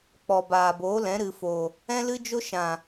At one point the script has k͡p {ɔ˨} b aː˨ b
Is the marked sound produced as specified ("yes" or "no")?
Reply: yes